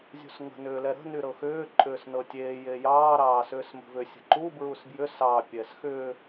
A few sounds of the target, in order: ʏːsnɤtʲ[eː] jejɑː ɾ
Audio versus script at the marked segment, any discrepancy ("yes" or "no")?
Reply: no